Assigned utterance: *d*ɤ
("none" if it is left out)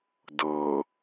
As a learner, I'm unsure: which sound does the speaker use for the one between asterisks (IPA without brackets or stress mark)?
d